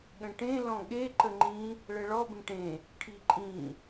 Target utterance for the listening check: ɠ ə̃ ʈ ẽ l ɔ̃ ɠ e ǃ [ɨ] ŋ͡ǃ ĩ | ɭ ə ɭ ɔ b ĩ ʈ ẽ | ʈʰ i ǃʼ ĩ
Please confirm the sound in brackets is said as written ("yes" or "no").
no